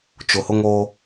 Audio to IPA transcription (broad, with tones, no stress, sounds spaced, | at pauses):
t͡ʃ ʊ˨ h ʊ˦ ŋ o˦